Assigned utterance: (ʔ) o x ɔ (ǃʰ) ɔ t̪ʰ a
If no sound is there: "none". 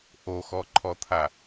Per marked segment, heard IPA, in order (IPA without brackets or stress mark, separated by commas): ʔ, ǃʰ